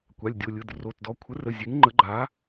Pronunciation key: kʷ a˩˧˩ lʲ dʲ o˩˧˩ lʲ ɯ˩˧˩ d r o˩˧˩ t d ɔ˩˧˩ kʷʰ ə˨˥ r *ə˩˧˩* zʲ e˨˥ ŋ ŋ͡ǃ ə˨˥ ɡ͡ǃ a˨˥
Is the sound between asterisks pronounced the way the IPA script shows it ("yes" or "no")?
yes